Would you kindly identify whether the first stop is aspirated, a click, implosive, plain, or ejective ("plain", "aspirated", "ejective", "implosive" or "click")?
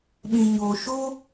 implosive